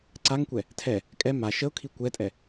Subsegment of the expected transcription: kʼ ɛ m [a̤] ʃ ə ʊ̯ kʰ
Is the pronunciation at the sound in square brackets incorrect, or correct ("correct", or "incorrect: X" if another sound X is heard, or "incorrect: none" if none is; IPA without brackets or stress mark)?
incorrect: a